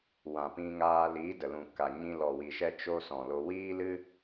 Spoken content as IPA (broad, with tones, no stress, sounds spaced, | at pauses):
w ã˨ p ĩ˧ ŋ aː˧ l iː˨˦ d ə˨ l ũ˨ k a˨ ɲ ĩ˧ l ɔ˨ w i˨ ʃ ɛ˦ t͡ʃ o˦ s ɔ̃˨ l o˧ w iː˦ l ɨ˦